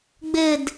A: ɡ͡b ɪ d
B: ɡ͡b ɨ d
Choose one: A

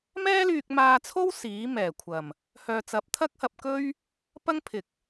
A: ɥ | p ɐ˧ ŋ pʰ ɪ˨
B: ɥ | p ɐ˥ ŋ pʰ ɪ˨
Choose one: B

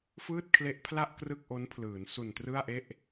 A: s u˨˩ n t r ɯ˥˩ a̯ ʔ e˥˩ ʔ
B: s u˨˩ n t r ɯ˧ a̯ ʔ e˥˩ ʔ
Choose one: A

